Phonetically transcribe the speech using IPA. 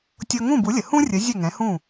tʲɤ˧ ŋũ˥˩bu˩˥lʲə˩ hũ˥rʲə˩˥ zʲə˥˩ŋɛ̃˩˥hũ˥˩

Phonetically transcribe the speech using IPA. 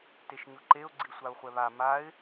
teʃɲʊǃeʊ̯ ɡ͡ǀisʷaʊ̯χʷɛβa maɪ̯

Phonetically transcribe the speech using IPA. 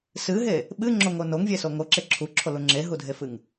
sɨɦe | ɓɨŋ͡ǁoŋo noŋvʲeso ŋoǁe ǁʰuǁʰolu ŋ͡ǁeɦudʱefɨŋ

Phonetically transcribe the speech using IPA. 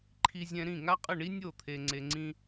ǃʰi˨zʲɛ̃˨ ɾĩ˦˨ŋa˦qʼə˦˨ɳi˦ nʲo˦˨t̪ʰe˨ŋ͡ǀe˨ ŋ͡ǀĩ˦

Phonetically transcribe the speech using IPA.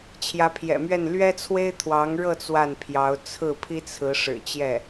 t͡ɕʰjä˧˥pʰjɛ̰˨˩mɥɛ˥˩n lɥɛ˥t͡sʰwe˥ɪ̯ t̪ʰwɑ˧˥ŋɻɤ˥˧ t͡swa˥˩npʰjɑ˧˥ʊ̯ t͡sʰɹ̩˥˩pʰi˥ t͡sʰɹ̩˧˥ ʂɻ̩˨˩t͡ɕjɛ˥˩

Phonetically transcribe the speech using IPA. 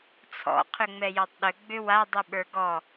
t͡sʰɔ̰ qʰʏŋ͡mɛjɔtˤɗʏ ɡ͡bʏwa dˤiɓə˞ɡɔ

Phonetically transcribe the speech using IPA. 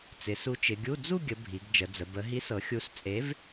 t͡sɪ˩˧su˨˥t͡ʃɪ˩˧ɡʲu˧˥˧ d͡zu˥˧ ɡʲə˩˧ bʱi˩˧ɡd͡ʒə˩˧d͡zə˩˧ bə˩˧ɦi˨˥sɤ˩˧ xʲu˨˥s t͡sʼe˨˥v

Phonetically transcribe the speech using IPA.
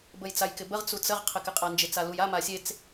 bəjt͡sajkɪbəʁ t͡sut͡səʁ qʰɪkɪqʼand͡ʒɪ t͡saluja masʲet͡s

